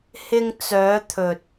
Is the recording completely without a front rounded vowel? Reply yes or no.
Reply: no